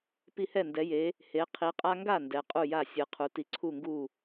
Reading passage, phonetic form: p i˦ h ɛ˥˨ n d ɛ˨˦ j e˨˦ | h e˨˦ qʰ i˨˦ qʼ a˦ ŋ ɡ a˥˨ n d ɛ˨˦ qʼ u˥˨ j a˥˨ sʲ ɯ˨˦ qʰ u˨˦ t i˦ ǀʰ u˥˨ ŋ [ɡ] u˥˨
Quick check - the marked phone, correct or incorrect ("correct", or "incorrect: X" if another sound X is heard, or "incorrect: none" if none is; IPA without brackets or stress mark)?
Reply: correct